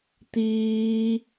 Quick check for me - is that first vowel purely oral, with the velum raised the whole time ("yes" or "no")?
yes